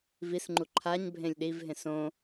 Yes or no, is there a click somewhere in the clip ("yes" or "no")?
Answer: yes